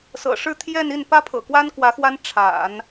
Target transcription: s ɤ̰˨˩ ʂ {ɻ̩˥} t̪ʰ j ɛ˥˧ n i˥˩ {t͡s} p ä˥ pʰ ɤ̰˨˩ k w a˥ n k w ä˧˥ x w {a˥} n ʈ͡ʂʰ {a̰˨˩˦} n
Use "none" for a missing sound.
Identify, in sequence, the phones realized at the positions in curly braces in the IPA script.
ɻ̩˥˧, n, a˥, a̰˨˩˦

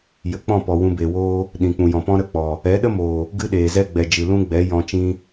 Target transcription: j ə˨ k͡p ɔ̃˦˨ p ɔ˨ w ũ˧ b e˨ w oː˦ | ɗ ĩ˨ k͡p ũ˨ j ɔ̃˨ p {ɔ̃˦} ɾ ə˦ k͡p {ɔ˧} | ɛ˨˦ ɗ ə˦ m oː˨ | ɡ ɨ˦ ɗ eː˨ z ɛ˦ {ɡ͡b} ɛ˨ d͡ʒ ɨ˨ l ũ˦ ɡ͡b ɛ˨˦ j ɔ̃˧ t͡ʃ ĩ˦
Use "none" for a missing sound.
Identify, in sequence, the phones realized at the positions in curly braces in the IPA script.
ɔ̃˦, ɔ˨, ɡ͡b

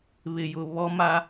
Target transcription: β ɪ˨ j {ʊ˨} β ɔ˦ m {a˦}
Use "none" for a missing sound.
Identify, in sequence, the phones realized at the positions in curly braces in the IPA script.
ʊ˨, a˦

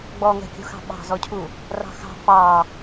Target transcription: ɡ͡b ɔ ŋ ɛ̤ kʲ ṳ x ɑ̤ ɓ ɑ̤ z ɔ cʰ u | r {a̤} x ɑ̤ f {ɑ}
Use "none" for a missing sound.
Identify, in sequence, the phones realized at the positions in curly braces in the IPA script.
ɑ̤, ɑ

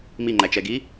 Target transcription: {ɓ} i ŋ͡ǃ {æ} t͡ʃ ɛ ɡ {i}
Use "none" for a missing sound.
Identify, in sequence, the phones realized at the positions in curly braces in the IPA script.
m, æ, i

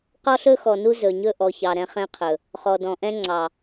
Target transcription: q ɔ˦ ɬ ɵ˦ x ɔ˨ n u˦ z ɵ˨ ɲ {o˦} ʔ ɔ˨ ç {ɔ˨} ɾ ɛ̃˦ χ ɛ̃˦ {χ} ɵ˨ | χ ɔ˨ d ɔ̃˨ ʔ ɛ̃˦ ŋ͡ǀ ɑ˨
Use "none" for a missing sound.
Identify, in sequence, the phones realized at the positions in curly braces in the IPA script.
ɵ˦, ɑ˨, qʰ

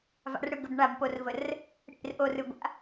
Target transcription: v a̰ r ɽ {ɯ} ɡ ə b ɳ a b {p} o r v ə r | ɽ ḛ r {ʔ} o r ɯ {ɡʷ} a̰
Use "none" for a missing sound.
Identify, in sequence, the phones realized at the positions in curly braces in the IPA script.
ɯ, p, ʔ, ɡʷ

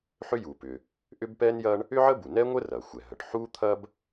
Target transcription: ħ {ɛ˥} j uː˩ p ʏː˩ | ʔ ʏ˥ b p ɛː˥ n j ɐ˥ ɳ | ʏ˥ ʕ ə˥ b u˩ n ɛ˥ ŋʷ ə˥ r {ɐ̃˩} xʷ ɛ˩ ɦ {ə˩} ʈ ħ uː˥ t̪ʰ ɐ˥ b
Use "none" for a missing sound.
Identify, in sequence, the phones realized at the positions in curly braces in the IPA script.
ʏ˥, ɐ˩, ə˩

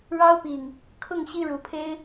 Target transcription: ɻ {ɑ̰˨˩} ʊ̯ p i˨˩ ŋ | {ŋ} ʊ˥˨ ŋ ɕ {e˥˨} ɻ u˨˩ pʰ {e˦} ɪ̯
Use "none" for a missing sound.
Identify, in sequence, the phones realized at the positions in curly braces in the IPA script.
ɑ˦, kʰ, i˥˨, e˦

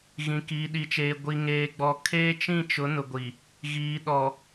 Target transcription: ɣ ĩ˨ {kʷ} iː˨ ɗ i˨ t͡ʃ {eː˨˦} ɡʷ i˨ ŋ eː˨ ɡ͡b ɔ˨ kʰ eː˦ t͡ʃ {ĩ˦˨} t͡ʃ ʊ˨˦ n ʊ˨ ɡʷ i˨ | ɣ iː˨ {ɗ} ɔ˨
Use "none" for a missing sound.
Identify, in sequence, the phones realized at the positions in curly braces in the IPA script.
k, eː˨, ĩ˦˨, ɗ

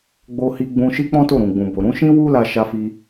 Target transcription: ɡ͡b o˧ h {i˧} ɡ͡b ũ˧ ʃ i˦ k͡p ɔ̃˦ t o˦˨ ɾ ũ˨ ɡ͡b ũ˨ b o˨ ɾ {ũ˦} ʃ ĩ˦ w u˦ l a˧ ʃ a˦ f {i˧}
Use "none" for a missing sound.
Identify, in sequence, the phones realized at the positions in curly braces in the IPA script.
i˧, ũ˨˦, i˦

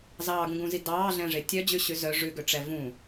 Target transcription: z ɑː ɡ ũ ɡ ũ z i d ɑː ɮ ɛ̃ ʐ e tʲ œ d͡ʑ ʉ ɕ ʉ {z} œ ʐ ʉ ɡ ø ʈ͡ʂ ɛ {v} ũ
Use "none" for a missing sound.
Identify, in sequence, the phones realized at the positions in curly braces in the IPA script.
z, v

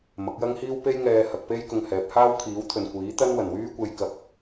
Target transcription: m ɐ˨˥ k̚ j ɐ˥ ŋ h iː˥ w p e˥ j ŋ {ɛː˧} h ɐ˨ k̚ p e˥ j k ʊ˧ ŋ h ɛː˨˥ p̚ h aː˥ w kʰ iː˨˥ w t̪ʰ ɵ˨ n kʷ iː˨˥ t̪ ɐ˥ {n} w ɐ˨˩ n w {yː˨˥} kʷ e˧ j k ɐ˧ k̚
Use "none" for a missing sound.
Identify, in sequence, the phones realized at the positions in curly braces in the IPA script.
ɛː˧, n, yː˥

